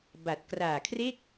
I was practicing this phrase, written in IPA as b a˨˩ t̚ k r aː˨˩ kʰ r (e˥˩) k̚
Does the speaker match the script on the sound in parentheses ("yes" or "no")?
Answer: yes